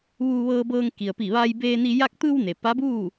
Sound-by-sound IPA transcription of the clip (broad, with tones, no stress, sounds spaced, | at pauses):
ʋ uː˧ ʋ ɤː˧ b ɤː˧ ŋ k i˩ ə̯ p i˧˩ ʋ a˧ j b eː˧ n i˧ j a˧ k̚ t̪ ɯː˧ w n e˩ p a˧˥ b uː˥˨